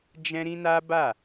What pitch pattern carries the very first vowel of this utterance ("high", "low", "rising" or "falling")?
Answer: high